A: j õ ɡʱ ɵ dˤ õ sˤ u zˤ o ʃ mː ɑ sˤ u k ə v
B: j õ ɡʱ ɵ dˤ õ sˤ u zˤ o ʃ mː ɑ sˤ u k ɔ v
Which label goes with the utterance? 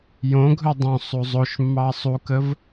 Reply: A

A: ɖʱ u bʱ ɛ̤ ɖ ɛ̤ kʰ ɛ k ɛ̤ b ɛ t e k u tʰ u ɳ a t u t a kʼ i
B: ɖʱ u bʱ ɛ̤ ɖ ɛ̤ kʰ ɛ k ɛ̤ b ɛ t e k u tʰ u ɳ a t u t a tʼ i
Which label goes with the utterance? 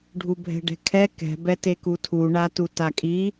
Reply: A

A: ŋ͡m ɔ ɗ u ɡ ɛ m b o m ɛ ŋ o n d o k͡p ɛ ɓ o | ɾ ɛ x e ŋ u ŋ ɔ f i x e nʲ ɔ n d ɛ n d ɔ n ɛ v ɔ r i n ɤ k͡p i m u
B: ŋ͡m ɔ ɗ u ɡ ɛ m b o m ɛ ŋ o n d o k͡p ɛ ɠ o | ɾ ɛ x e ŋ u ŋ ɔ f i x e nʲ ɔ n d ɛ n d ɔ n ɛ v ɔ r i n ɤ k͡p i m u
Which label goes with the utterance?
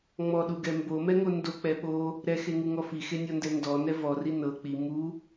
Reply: A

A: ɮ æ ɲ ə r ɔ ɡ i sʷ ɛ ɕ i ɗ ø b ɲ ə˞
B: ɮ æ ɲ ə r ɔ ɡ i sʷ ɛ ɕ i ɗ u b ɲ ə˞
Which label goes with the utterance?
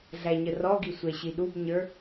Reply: B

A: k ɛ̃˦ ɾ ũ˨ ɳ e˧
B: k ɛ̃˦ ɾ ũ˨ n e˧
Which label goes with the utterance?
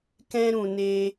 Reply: B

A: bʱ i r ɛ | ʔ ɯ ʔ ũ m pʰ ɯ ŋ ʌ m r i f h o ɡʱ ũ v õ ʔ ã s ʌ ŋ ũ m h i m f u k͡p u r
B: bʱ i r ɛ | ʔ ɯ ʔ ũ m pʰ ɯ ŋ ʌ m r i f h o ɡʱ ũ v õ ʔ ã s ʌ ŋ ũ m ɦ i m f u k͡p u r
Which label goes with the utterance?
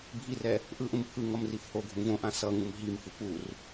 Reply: B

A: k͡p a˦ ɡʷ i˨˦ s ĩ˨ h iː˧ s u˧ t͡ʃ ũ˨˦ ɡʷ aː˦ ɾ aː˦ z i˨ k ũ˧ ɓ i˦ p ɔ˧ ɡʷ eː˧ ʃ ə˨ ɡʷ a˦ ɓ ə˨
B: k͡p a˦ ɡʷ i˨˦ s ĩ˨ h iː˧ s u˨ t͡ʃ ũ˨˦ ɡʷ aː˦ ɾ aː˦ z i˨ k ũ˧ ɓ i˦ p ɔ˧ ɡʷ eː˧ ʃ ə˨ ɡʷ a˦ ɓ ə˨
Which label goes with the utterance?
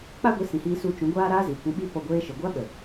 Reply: A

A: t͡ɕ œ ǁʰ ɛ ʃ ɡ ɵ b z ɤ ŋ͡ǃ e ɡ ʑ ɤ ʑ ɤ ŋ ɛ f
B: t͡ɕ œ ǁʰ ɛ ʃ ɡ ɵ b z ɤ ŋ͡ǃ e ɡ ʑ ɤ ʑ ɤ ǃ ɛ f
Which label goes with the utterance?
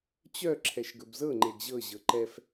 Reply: B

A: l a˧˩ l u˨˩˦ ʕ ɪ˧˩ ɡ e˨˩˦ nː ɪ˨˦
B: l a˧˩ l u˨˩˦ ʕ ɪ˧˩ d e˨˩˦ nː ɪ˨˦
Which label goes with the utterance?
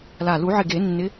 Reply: A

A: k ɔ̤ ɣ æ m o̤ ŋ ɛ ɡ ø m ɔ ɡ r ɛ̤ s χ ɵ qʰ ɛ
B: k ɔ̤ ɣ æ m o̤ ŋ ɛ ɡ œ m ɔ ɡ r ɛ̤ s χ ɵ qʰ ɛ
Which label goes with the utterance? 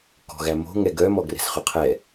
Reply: B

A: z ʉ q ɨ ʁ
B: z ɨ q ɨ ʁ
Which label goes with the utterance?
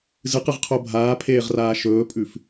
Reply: B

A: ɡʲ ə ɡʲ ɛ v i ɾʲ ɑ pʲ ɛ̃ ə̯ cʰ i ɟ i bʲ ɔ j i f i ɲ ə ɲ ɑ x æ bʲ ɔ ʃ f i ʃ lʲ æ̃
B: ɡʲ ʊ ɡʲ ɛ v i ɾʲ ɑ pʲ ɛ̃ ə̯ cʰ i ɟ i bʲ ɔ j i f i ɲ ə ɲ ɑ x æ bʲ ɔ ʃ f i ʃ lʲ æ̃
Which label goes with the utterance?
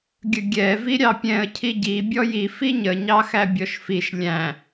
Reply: A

